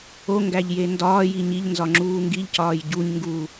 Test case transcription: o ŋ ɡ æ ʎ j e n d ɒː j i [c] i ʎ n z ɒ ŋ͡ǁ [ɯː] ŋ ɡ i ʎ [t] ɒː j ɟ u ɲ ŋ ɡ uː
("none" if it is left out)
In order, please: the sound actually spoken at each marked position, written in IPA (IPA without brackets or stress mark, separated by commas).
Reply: ɲ, uː, c